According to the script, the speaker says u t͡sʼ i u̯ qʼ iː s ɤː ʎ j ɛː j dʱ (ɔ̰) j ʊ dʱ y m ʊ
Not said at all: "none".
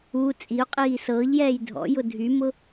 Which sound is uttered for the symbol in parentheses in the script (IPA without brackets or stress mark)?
ɔ̰